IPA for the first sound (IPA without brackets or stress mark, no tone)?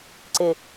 ǀ